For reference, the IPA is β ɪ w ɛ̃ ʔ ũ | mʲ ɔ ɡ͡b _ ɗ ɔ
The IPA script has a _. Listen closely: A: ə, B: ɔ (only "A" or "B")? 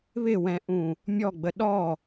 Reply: A